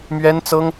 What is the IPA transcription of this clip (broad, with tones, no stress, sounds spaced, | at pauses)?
m ɥ ɛ˥ n t͡s ɤ˥ ŋ